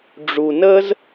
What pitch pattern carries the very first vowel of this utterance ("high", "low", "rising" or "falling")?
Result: low